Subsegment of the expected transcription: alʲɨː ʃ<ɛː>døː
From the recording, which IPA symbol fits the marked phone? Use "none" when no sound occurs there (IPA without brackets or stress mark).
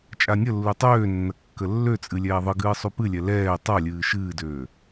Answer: ɨː